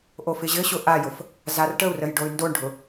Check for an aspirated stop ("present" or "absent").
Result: absent